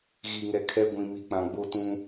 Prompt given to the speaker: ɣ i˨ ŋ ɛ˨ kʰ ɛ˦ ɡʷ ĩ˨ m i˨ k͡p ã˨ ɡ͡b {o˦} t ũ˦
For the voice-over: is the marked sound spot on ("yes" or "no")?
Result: yes